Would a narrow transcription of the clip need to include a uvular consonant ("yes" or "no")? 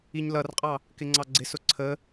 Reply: yes